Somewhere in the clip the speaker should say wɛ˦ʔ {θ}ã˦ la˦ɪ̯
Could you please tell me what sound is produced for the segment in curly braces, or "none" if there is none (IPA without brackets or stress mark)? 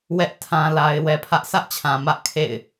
tʰ